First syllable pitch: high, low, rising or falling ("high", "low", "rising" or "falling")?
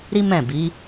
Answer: high